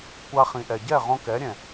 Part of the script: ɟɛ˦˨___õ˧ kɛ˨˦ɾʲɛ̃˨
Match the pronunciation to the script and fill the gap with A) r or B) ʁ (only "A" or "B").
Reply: B